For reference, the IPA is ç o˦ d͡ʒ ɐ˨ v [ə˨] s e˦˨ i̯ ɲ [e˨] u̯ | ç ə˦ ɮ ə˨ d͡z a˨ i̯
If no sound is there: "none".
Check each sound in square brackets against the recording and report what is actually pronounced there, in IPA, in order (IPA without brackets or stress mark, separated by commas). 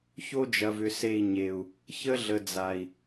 ʏ˨, e˨